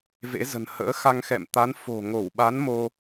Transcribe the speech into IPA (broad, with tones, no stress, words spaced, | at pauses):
vḛ˧˥zə̤˨˩n hə̰ː˧˥xa˧ŋxɛ̰˧˨m t̪a˨˦n fo̤˨˩ŋo˧˩wɓa˨˦n mo˧